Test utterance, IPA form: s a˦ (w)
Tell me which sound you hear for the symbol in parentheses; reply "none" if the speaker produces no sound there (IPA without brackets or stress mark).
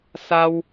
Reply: w